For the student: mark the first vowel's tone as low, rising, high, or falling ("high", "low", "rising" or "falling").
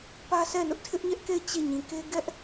high